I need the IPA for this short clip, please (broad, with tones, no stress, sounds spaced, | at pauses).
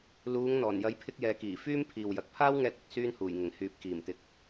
l uː˨˧ ŋ n̪ ɔː˨˩ n j ɐ˨˥ j pʰ ɪ˧ k̚ j ɛː˨˧ k iː˨˩ f yː˥ m pʰ iː˨ w j ɐ˨ k̚ pʰ aː˥ w ŋ ɛː˧ t̚ ɵ˨ t̚ s yː˧ n h uː˨˩ j ŋ ɪ˨˩ ŋ h yː˨ p̚ k iː˨˩ m t̪ ɪ˨ k̚